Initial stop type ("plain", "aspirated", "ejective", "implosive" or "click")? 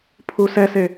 aspirated